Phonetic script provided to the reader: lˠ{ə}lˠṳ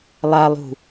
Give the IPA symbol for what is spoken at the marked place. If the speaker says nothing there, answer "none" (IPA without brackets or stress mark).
a